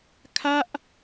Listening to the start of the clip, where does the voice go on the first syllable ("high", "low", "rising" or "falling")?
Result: falling